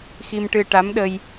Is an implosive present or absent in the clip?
present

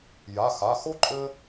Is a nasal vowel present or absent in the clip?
absent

